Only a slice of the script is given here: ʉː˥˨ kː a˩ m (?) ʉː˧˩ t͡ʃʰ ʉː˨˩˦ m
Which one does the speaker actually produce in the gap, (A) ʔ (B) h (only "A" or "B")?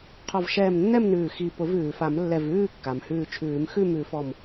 B